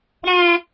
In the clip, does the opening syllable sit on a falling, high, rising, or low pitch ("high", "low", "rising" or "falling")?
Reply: high